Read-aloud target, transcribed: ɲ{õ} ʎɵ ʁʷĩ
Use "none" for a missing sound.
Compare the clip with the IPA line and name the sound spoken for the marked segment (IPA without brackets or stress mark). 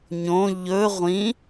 õ